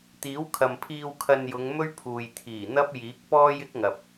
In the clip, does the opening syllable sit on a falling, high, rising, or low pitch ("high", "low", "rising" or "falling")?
rising